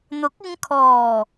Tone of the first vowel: rising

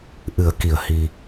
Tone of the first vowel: low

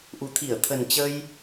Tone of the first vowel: low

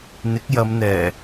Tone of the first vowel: rising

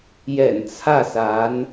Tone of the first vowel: low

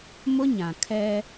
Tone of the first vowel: high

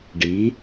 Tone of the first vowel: rising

